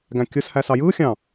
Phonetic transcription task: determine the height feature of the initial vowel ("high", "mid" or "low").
low